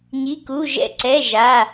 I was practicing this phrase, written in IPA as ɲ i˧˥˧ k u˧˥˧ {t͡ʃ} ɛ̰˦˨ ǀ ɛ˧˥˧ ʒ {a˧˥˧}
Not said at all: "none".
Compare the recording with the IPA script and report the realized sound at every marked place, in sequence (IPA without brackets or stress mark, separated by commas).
ʒ, a˧˥˧